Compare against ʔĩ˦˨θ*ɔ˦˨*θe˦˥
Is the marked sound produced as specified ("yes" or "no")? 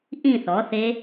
no